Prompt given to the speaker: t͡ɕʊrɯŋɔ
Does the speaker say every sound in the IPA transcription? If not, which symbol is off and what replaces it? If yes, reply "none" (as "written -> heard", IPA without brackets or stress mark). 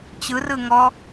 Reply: ʊ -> ɯ